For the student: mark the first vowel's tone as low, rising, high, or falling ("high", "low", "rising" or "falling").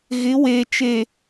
rising